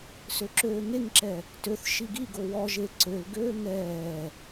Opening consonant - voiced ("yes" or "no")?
no